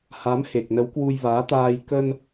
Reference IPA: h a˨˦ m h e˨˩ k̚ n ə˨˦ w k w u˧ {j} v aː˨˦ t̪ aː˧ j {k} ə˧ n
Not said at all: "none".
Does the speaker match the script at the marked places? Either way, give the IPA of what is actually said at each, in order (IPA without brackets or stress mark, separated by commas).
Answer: j, k